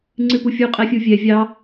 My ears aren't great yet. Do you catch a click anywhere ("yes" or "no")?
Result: yes